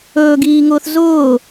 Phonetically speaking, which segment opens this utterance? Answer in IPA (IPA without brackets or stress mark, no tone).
ɵː